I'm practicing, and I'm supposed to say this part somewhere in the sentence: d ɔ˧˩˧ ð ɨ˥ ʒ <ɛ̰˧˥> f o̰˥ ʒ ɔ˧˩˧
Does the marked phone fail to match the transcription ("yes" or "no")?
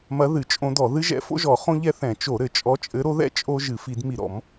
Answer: no